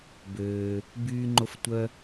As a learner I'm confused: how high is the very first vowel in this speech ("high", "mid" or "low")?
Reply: mid